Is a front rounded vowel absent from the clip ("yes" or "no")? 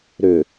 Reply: no